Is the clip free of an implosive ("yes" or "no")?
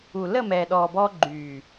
no